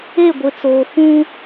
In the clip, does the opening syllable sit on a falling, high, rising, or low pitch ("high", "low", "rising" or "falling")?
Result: falling